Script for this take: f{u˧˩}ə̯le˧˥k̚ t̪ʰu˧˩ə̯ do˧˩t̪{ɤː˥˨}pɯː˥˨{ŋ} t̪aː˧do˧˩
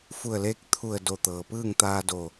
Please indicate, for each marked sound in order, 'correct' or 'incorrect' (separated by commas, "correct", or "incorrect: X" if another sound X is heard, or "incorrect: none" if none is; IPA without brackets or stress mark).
correct, incorrect: ɤː˩, correct